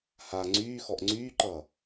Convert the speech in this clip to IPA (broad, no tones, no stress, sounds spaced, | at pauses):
h a ŋ͡ǀ yː x ɔ ʔ ŋ͡ǀ yː ǃ ʌː